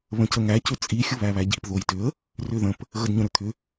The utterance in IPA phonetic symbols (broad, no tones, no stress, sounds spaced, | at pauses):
β ə̃ c ə ŋ æ c ʏ t͡sʼ i xʲ ʊ β æ β æ ɟ i̤ p ð o j t ʏ ə̯ | r ʏ ð ə̃ p | ɣ ə d ɲ ə̃ ɾ ʏ t̪ʰ ʏ